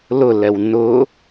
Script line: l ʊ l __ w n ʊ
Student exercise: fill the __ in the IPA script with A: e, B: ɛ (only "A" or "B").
B